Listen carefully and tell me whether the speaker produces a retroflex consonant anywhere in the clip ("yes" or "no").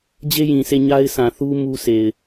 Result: no